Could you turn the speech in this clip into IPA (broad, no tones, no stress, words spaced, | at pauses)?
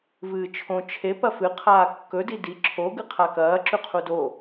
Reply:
vɨːt͡ʃʰõ t͡ʃʰe pɐfɨ qʰaːkːɵ didi ǁʰo ɡɨqʰakɐː ǁʉqʰudo